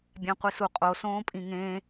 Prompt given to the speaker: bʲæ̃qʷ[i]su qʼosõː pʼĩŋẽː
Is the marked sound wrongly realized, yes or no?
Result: no